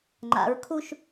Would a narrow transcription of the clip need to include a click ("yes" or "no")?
yes